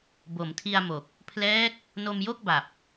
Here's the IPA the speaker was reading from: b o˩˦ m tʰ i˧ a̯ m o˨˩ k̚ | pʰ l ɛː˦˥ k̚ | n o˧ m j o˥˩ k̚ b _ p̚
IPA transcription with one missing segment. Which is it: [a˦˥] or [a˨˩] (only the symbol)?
a˨˩